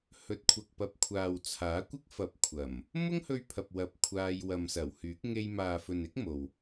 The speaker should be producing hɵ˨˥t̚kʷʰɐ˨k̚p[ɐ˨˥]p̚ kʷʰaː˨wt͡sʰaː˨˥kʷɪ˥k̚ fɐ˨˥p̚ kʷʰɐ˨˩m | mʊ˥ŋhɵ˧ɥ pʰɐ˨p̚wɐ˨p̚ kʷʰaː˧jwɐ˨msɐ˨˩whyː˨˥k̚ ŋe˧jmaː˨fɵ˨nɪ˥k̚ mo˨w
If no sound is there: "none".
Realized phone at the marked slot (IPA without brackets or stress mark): ɐ˨˥